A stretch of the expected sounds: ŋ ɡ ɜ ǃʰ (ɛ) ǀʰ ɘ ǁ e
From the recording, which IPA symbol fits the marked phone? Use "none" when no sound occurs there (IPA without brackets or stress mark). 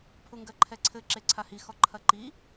ɛ